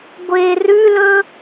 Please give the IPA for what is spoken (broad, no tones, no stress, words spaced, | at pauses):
ɡʷe rʉlɵ